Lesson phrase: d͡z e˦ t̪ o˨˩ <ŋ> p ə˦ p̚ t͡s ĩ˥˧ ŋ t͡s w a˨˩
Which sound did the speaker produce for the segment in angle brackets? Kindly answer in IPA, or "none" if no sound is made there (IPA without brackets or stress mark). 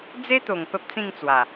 ŋ